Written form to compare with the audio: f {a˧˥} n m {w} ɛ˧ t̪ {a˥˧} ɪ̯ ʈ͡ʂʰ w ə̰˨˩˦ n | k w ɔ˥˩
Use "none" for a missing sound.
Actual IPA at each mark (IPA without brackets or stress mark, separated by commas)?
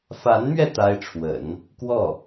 a˧˥, ɥ, a˥